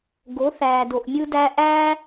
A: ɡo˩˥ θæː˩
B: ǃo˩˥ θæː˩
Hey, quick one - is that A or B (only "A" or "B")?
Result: A